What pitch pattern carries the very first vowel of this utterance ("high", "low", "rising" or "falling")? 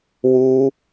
high